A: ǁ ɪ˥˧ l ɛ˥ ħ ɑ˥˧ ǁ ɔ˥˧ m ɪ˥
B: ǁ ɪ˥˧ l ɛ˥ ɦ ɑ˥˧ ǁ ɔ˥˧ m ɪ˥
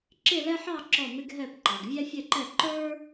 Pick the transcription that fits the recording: A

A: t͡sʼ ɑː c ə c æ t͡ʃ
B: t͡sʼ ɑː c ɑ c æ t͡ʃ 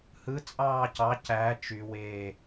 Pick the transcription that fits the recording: B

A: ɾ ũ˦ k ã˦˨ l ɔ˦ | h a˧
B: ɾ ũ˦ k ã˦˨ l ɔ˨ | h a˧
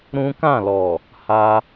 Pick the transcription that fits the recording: B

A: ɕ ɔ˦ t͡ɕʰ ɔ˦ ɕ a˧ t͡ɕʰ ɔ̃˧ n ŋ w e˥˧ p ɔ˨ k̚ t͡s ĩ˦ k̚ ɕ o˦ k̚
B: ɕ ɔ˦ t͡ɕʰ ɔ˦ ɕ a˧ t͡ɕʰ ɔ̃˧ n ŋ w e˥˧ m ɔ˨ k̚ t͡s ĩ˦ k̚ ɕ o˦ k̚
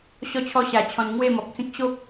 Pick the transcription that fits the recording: B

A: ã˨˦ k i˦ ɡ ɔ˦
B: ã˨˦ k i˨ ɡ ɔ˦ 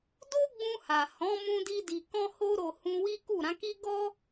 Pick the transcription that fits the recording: A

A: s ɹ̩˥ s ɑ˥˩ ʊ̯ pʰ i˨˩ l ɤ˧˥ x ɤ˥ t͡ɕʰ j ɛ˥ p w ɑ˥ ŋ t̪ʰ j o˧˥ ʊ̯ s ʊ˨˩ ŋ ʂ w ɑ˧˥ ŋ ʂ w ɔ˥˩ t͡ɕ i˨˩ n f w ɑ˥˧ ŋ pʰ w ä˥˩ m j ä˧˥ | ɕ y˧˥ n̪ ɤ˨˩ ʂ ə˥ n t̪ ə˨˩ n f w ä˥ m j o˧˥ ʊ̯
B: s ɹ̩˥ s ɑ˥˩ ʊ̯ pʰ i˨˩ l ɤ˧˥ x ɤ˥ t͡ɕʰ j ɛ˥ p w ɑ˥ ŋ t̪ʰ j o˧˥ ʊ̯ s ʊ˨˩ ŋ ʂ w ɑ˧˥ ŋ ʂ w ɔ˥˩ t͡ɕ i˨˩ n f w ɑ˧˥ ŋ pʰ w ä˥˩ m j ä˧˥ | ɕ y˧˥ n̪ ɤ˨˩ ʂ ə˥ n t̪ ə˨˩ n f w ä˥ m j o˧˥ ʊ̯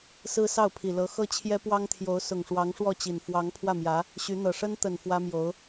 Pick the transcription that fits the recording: B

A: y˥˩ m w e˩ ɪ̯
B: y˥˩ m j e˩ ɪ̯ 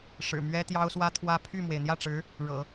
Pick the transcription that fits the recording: A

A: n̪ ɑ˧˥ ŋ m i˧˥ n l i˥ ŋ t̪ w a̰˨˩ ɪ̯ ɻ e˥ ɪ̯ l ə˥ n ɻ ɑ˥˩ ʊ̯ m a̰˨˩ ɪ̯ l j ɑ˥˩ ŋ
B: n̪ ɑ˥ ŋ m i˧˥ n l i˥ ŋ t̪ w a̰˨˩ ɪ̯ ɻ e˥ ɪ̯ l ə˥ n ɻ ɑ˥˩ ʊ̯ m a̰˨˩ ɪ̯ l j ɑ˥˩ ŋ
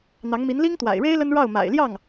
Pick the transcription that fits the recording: A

